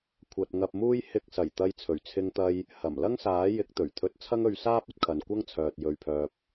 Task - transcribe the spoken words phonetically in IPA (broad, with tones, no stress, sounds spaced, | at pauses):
kʷʰ ɐ˧ t̚ ŋ ɐ˧ p̚ m uː˥ j h ɪ˧ k̚ s ɐ˨˩ j t̪ ɐ˧ j t͡sʰ ɵ˨˩ ɥ t͡sʰ ɪ˧ ŋ t̪ ɐ˧ j | h ɐ˨˩ m l ɐ˥ ŋ s aː˨˥ j ɪ˨˥ k̚ t̪ ɵ˨˩ ɥ t̪ʰ ɵ˧ t̚ t͡sʰ ɐ˥ ŋ ɵ˧ ɥ s aː˥ p̚ ɐ˥ t̚ kʰ ɐ˨ n kʷ ɐ˥ ŋ t͡sʰ œː˨ t̚ j ɵ˨ ɥ pʰ œː˨ p̚